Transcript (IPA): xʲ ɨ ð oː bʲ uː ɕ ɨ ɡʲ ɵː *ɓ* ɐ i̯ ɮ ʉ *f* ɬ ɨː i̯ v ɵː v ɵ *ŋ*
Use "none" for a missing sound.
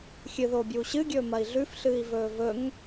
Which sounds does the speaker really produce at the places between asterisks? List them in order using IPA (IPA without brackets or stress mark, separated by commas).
m, f, ŋ